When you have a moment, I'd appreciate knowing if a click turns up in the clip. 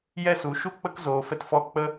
no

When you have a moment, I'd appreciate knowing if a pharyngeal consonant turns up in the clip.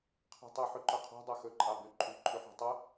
yes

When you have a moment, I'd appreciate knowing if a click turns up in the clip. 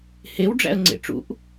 yes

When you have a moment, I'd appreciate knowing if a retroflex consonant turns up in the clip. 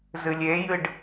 yes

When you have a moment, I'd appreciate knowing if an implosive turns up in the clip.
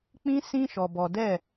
no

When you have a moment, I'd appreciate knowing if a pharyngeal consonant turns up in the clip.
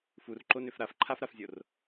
no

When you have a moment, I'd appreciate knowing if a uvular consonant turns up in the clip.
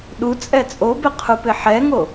yes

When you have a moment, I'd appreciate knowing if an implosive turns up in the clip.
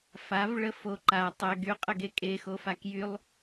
no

